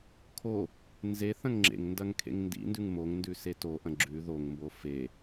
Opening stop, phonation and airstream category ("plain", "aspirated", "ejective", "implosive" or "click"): aspirated